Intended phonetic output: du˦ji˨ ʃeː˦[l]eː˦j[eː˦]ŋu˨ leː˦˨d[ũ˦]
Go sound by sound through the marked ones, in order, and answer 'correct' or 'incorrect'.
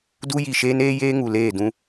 incorrect, correct, correct

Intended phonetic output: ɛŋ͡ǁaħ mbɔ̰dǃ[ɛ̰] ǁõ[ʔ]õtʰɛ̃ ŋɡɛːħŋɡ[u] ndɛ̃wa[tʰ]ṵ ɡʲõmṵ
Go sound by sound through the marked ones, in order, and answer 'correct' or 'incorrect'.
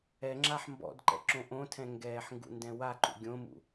correct, correct, incorrect, incorrect

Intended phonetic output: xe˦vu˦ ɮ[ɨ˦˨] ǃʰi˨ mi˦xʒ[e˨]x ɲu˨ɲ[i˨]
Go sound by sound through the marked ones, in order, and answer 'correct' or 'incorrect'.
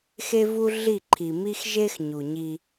incorrect, incorrect, incorrect

